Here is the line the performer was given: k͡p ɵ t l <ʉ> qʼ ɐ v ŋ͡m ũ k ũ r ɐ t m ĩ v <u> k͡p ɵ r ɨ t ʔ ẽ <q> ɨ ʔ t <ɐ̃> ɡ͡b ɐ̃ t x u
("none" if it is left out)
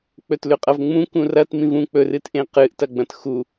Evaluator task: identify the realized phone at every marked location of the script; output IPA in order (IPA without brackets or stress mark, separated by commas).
ʉ, ũ, q, ɐ